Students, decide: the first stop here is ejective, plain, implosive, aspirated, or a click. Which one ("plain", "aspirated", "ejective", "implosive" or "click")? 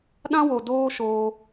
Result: implosive